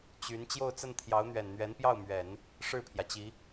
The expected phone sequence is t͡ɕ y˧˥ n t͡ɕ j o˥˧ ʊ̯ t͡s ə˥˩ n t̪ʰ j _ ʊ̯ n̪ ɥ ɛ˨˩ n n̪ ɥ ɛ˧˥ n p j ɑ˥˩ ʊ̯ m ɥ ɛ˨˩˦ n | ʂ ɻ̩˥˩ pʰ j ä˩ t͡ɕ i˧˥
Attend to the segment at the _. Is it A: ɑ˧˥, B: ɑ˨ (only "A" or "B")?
A